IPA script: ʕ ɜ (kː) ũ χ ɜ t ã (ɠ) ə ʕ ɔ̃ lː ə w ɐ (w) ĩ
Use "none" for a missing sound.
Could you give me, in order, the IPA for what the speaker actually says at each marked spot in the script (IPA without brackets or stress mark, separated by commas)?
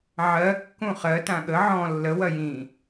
kː, ɠ, j